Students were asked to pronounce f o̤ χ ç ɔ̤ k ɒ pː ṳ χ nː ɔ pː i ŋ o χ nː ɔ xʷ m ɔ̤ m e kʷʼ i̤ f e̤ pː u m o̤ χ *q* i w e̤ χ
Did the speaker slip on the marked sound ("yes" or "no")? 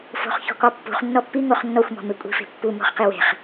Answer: no